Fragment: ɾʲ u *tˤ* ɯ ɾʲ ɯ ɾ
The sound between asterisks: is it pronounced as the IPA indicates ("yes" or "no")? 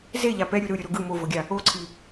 no